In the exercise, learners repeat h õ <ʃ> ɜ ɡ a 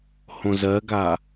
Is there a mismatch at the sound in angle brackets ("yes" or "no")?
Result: yes